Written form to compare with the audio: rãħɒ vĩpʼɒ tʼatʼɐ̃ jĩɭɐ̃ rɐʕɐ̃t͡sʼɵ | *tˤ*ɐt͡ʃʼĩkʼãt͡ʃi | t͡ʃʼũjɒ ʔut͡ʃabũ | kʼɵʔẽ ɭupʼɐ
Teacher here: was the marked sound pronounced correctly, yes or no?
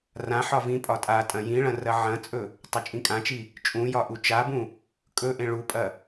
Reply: yes